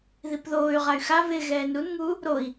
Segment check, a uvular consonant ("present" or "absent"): present